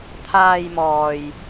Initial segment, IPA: t̪ʰ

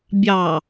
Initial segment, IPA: bʲ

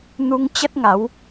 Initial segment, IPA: n̪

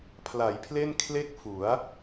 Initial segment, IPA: pʰ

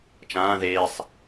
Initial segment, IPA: t͡ʃ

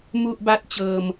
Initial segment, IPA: m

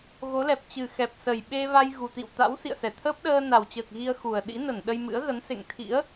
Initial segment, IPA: ɣ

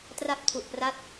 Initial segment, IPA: t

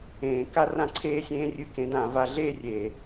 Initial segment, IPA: ẽː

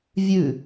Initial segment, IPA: vʲ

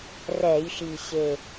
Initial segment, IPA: r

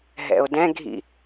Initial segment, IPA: ɦ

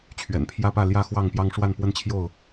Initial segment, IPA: t͡ɕʰ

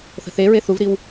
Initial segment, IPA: θ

